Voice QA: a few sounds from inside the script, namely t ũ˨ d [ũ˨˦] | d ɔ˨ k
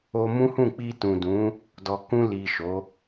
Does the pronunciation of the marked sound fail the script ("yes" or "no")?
no